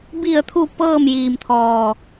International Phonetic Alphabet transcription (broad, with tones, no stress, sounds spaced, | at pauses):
b i˧˩ ə̯ t̪ʰ u˧˩ p ɤː˥˨ m j iː˧˩ m t̪ʰ ɔː˧˩